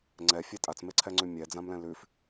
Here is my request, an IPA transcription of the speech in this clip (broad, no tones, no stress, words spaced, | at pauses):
ŋ͡ǀɛfʲɛ tʼat͡smeǀʰɛŋ͡ǀʉ mʲɛd͡zãmlɛ̃ lʉf